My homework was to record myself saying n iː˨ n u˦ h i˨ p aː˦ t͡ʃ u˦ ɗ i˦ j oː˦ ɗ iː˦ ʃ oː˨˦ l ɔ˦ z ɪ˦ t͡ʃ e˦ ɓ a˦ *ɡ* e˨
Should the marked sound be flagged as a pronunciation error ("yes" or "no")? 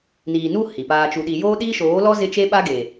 no